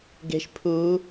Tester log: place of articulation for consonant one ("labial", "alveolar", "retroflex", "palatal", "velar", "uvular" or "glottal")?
velar